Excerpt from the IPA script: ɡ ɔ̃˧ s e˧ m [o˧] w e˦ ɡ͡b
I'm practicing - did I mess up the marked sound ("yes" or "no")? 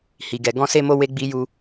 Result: no